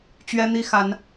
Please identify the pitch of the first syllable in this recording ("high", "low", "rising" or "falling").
high